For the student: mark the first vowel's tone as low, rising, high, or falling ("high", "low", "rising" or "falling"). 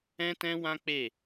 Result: high